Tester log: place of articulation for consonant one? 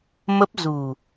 labial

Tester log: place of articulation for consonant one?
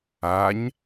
palatal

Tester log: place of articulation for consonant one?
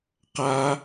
uvular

